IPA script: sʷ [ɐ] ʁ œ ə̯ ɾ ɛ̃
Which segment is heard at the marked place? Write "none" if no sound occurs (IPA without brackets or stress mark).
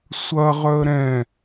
ɐ